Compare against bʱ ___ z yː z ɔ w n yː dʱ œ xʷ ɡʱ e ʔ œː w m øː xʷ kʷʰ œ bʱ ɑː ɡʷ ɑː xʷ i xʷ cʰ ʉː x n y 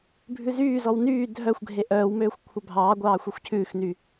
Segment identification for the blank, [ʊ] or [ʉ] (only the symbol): ʉ